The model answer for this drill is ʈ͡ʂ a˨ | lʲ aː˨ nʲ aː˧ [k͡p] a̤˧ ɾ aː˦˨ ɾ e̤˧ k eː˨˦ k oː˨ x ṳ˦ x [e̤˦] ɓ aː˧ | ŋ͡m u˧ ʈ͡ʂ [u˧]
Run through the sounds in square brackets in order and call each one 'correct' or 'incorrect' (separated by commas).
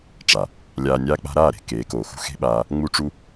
correct, correct, correct